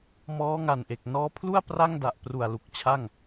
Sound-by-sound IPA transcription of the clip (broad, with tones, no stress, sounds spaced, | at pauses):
m ɔː˦˥ ŋ a˨˩ n ʔ e˨˩ k̚ n ɔː˦˥ pʰ l u˥˩ a̯ p r a˥˩ ŋ d a˨˩ ʔ p r u˨˩ a̯ l u˨˩ k̚ t͡ɕʰ a˥˩ ŋ